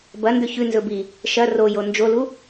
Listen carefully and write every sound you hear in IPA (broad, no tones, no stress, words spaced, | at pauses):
bɐ ndɵçʉ nzɵbi | ʃɐ rojo nd͡ʒolu